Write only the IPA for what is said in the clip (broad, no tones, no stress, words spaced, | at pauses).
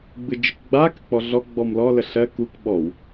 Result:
ɡ͡bɯd͡ʒɯkɡ͡ba kək͡pɔɮɔ ɡ͡bɔmlɔ ləɬɜ kuk ɓɔw